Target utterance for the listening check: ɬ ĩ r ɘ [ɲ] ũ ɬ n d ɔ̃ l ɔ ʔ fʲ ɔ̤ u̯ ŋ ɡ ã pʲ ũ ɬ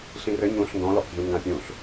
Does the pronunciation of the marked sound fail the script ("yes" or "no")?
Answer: no